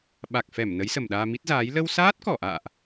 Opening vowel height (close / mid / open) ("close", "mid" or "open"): open